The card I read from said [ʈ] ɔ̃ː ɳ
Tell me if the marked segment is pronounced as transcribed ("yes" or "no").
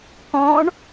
no